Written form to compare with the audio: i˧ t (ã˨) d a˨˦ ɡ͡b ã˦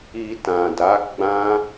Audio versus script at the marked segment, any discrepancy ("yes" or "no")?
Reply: no